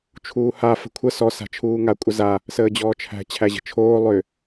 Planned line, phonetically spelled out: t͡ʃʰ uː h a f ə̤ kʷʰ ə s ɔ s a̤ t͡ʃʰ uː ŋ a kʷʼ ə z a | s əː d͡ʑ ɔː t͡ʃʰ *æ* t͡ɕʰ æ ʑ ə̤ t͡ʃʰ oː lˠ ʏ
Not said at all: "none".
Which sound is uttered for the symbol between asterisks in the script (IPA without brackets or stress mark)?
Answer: æ̤